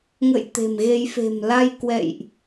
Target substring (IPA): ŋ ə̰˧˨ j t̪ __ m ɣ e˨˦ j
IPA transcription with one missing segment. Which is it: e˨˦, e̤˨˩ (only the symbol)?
e̤˨˩